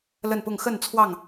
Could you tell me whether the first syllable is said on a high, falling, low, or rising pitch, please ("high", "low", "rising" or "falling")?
falling